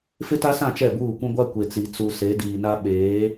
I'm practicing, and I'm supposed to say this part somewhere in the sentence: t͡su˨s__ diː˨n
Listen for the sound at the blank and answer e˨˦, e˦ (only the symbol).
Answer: e˨˦